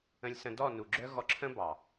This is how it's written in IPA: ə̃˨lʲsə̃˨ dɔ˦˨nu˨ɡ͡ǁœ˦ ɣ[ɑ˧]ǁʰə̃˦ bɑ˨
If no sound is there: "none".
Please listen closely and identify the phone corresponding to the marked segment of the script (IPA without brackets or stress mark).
ɔ˧